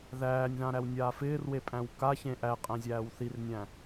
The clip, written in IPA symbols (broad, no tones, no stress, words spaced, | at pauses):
ðæːnʲðãɾæwnʲaː fɪːrwepʼæ̃w kaçẽ ʔæqʼæ̃zʲæːw θirnʲæ̃